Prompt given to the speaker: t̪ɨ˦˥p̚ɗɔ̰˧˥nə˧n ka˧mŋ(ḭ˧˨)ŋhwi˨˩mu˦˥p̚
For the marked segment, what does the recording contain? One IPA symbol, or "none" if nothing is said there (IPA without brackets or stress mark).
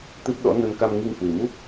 i˧